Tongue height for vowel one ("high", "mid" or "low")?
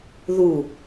high